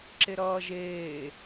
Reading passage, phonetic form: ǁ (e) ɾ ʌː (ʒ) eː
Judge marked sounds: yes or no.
yes, yes

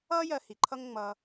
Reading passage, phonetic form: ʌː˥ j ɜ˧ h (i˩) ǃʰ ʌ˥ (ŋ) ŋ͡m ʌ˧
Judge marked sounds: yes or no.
yes, yes

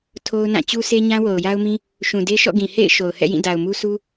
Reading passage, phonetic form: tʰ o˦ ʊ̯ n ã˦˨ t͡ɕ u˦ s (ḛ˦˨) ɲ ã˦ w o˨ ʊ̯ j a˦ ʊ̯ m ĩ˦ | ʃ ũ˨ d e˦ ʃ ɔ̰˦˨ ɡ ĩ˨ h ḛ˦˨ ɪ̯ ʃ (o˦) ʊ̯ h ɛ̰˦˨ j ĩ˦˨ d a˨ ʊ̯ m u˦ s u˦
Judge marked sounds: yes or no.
no, no

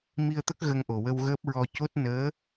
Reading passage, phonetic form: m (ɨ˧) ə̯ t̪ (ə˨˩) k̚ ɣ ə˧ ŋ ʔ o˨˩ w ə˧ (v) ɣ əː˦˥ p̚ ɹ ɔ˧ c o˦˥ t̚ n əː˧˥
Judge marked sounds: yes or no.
no, no, no

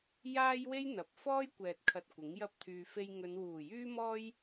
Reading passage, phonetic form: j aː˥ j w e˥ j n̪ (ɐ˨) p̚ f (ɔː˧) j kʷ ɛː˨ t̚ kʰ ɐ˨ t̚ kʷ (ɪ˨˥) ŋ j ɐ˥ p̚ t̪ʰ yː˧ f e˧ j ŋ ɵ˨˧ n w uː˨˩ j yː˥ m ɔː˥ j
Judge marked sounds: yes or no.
yes, no, yes

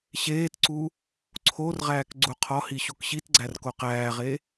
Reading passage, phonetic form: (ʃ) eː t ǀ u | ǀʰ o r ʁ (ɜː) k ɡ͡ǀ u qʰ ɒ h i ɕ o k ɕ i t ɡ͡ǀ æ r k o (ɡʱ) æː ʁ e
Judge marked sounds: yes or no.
no, no, no

